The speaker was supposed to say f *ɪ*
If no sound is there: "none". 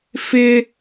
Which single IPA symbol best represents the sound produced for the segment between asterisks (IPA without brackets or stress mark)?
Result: ɪ